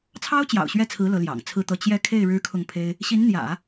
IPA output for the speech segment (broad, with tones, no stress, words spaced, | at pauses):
t͡sʰɑ˥ʊ̯t͡ɕjɑ̰˨˩ʊ̯ɕɥɛ˥˩t͡sʰɹ̩˧˥ lɤ˧˥ljɑ̰˨˩ŋt͡sʰɹ̩˥˧t̪ɤ˥˧ t͡ɕjɛ˥˧ kʰe˥˩ɪ̯ ɻɻ̩˥kʰʊ˥˩ŋpʰe˥ɪ̯ | ɕi˧˥nn̪jä̰˨˩˦